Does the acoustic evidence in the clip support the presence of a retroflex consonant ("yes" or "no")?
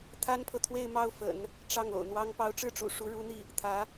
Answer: yes